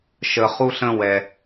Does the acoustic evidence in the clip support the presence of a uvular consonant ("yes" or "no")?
yes